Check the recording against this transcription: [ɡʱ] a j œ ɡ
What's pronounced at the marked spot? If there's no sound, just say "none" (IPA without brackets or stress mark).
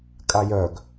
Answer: kʼ